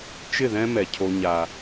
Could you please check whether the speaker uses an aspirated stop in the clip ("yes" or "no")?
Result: yes